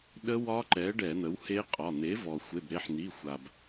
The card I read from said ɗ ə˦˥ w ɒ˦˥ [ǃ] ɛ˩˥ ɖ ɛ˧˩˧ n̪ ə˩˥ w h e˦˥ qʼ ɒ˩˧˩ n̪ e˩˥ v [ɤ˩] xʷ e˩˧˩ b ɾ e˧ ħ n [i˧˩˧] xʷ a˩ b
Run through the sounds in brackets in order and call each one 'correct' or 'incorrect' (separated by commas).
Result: correct, incorrect, incorrect